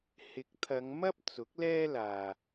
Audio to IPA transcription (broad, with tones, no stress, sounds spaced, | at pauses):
h ɪ˨˥ k̚ t̪ʰ ɐ˨˧ ŋ m ɐ˥ p̚ t͡s ʊ˨˥ k̚ l ɛː˥ l aː˨